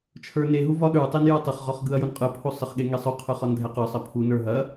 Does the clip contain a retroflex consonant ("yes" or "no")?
no